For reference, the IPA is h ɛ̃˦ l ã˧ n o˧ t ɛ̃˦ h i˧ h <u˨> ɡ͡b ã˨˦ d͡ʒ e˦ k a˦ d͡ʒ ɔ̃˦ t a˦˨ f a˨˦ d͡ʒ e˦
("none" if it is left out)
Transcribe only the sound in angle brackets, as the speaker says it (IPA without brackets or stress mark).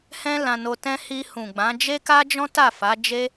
ũ˨